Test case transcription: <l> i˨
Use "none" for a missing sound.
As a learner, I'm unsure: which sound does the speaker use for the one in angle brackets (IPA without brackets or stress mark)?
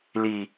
l